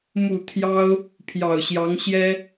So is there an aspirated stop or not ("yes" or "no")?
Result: yes